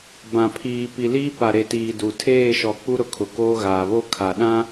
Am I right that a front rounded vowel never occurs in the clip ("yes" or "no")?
yes